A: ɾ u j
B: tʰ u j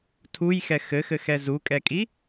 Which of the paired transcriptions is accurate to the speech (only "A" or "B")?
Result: B